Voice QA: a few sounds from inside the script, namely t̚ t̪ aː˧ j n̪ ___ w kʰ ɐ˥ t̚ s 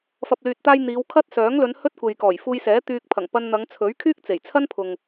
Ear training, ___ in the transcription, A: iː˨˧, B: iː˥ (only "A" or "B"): A